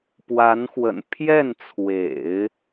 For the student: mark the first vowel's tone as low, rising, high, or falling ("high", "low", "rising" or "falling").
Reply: rising